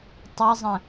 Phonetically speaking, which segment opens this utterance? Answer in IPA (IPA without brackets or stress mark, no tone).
tˤ